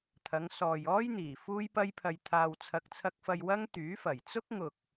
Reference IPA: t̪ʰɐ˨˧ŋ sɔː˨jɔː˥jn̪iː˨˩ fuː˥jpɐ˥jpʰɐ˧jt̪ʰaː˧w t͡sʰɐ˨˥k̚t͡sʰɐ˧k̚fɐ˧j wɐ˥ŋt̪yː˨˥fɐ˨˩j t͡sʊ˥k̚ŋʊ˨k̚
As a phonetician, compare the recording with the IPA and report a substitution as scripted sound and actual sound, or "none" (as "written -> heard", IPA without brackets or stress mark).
none